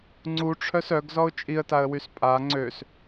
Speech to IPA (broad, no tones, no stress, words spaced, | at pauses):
ŋ͡ǀuʈ͡ʂʰœs œɡzɔʊ̯ t͡ʃʼiə̯taə̯wys pʼa ŋ͡ǀøs